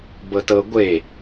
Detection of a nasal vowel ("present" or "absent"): absent